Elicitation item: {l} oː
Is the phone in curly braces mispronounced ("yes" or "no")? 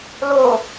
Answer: no